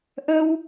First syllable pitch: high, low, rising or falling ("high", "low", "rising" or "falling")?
high